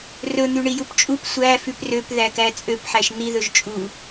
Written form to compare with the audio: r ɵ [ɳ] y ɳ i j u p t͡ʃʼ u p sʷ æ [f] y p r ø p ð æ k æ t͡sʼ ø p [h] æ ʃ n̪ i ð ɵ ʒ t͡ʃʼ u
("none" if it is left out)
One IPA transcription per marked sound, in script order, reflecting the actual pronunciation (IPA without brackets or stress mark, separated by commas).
n̪, f, ħ